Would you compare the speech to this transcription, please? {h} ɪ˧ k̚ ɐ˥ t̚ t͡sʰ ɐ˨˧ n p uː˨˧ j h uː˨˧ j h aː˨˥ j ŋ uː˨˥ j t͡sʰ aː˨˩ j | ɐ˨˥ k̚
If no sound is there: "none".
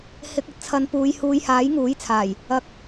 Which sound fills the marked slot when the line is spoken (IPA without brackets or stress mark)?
h